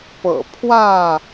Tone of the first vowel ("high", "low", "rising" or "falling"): low